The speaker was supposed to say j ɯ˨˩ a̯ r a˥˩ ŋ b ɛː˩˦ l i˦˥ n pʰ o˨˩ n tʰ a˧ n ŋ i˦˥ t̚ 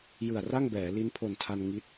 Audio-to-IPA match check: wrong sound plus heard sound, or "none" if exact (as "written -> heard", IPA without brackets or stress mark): none